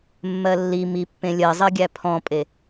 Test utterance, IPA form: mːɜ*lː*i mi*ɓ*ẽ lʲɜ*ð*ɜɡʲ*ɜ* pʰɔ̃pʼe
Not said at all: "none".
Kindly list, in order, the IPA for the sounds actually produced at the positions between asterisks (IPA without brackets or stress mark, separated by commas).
lː, pː, zˤ, æ